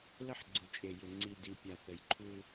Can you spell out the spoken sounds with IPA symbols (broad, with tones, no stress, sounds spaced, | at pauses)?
l ə˦ ħ ɡ͡ǀ u˨ t͡ʃʼ e˨ j ʏ˨ ŋ͡ǀ i˨ d i˨ pʲ a˨ θ ə˨ j ǃʰ u˦